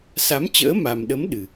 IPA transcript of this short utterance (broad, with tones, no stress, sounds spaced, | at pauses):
s a˨˦ m t͡ɕ ə̰ː˧˥ m a˨˩ m ɗ ə˨˦ m ɗ ɨ˨˩